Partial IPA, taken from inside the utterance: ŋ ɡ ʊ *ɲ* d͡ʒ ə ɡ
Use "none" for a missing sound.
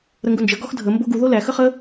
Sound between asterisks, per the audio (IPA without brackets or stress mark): n